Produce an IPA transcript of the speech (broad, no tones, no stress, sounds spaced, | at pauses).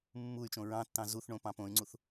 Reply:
mː u y̯ t͡ʃ õ ɹ ɑ̃ tː ɑ̃ z u θ ɳ õ p ɑ̃ p õ y̯ ŋ͡ǀ u θ